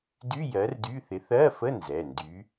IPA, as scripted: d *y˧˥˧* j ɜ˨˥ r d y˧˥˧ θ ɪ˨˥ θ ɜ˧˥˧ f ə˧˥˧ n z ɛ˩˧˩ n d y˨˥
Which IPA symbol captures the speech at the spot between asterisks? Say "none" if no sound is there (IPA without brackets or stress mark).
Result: y˧˥˧